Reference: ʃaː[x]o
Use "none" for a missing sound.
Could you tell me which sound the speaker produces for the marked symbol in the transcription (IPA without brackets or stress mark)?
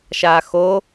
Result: x